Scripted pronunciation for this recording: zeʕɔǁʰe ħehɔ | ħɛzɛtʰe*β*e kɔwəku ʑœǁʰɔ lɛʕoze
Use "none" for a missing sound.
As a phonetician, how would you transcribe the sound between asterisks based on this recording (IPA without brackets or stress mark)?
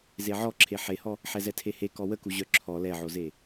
h